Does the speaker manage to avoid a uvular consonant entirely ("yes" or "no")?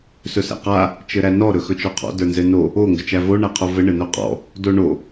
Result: no